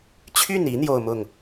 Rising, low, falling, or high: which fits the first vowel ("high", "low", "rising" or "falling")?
falling